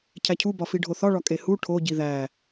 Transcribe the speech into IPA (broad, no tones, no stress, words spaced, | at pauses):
cʰæcʰubɒfi ɖʱoθɒɭɒ kʼehu ʈʰoɟi ðæ